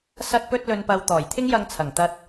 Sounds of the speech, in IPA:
sɐ˧t̚pɵ˧t̚lɵ˨npɐ˨w t̪ɔː˨˩jt̪ʰɪ˥ŋjɐ˧ŋt͡sʰɐ˨˩ŋ t̪ɐ˧t̚

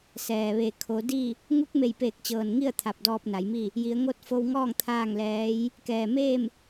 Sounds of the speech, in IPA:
sɛː˩ ʋeː˩kʰo˩˧di˥˨ | ŋu˧˥k̚me˧˩j peː˧˩k̚t͡ɕɤː˩nŋi˥˨ə̯ t̪ʰa˧˩p̚dɔː˧p̚na˩˧jmi˥˨ | ji˩˧ə̯ŋo˧˥t̚fo˧wŋɔː˥˨ŋ t̪ʰaː˥˨ŋlɛː˧˥j | kɛː˩meː˥˨m

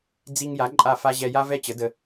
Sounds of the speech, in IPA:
d͡zi˧ŋja˩˥ ǃʼa˥˩fa˥ ʑɛ˧ja˥ vɛ˥t͡ɕə˩˥də˧

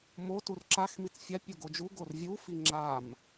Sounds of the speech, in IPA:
mo turǁax mit͡sfʲa pʲoɡod͡ʒu ɡorvʲu fiŋ͡ǁam

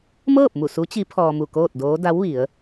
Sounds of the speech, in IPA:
mɤː˥˨p̚mu˧˩ su˧˥t͡ɕi˧˥ pʰɔː˧mu˧˩ koː˥˨t̚doː˧˥ da˧˥wʋi˩˧ə̯

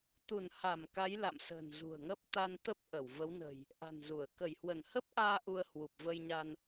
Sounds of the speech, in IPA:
t̪u˧˩nha˧˩m ka˨˦jla̰˧˨msə̤ː˨˩n zṳ˨˩ə̯ŋəː˦˥p̚ t̪a˧nt̪ə˦˥p̚ ʔə˧˩w və˨˦wnə̤˨˩j | ʔa̤˨˩nzu˧˩ə̯ kə˧˩jhwə˧˩nhə˦˥p̚ʔaː˧ ʔu˧ə̯hwu˨˩p̚və˧jɲa˧n

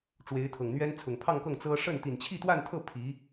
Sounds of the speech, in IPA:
ʈ͡ʂwe˧˥ɪ̯t̪ʰɤ˨˩ŋn̪ɥɛ˥n t͡sʰʊ˨˩ŋpʰɑ˥˧ŋkɤ˥˩ŋ t͡sɤ˥ ʂə˥˩n t̪i˨˩nt͡ɕʰi˥˧t̪wa˥˧nt̪ʰɤ˥˩ pʰi˧˥

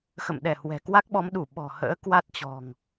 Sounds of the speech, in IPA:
xə̰˧˨mɗɛ˧˩ hwɛ̤˨˩kwa˦˥k̚ɓɔ˨˦m ɗu˧˩ ɓɔ̤˨˩hə̰ː˧˥ kwa˦˥t̚t͡ɕɔ̤˨˩ŋ

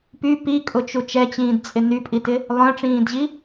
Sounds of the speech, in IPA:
py pikʼʊt͡ʃu t͡ʃɛt͡ɕĩːdt͡sʼɪ nypʼitɪ | lˠœ̃ʈ͡ʂĩːdʑi

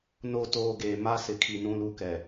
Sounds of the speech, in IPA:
no˦˨ toː˦˨ɡeː˨ ma˦sɪ˨kʰi˨ nũ˦lu˦kɛ˨

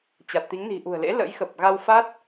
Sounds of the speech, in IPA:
t͡ɕa˨˩t̚t̪i˨˦ŋni̤˨˩ ʔṳ˨˩ə̯lḛ˧˥lə̰˧˥jxə˨˩p̚ ɣa˧wfa˦˥t̚

